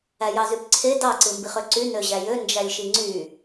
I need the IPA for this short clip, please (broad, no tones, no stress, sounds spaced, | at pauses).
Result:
æ j ɑ z y p ǀʰ e d ɑ ǀ ɯ m b i χ ø ǀ y n ø ʑ æ j ø n d͡ʒ æ lʲ ʃ i ŋ͡ǀ y